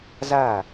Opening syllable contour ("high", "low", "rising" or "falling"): falling